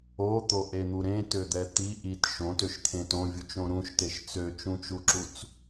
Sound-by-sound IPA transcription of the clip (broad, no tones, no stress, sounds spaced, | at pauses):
o t̪ o ʔ e n̪ u ɾ ẽ t ø d̪ ɛ t̪ i ʔ i t ʃ õ t ø ʃ t̪ʰ ẽ t õ vʲ u t͡ʃ õ ɾ ũ ʃ t e ʃ t͡s ø t͡ʃ ũ t͡ʃ u ǁ u t͡s